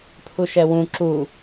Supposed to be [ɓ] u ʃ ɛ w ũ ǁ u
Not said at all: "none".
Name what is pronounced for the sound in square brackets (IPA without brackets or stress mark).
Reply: pʰ